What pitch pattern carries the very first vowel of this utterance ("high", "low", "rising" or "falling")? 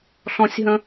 high